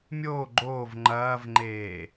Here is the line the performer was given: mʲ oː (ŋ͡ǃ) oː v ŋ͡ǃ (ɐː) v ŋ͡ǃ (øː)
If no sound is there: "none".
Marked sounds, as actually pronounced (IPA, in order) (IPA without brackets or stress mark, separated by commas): ɡ͡ǃ, ɐː, eː